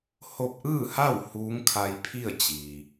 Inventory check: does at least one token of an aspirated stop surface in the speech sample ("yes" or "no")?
yes